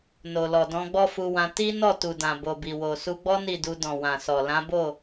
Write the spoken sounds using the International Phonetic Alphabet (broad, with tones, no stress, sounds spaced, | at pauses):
n o˨ l ɔ˨ d ɔ̃˧ ɡ͡b ɔ˦ f u˧ w ã˧ t i˦ n ɔ˦˨ t u˨ d ã˨ b o˨ b i˨ w o˨ s u˧ ɡ͡b ɔ˦ n i˦˨ d u˧ d ɔ̃˨ w ã˨ s ɔ˨ l ã˨˦ b o˦˨